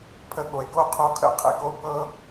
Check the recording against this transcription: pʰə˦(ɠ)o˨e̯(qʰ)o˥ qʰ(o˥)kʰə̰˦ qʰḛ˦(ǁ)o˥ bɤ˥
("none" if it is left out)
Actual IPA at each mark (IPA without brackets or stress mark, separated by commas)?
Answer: ɠ, k, o˥, k